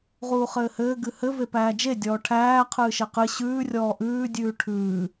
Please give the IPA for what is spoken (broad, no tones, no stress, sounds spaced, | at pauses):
ʁ uː χ ɘː h ɘː ɡ ɨ h ɘ v e p æː d͡ʒ e dʲ ɔː ʈʰ æː qʰ ɨː ʃ e q ɨ ɕ ʉː rʲ ɔː ʔ ʉː dʲ ʉː ʈʰ ʉː